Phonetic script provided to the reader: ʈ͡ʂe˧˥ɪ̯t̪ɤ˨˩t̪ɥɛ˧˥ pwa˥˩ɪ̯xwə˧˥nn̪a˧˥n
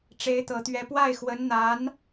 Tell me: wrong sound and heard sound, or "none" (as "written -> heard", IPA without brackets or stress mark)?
none